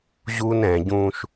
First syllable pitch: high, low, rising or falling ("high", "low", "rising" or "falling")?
high